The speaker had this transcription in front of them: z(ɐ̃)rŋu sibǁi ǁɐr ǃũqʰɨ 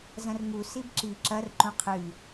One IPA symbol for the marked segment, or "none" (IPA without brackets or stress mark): ɐ̃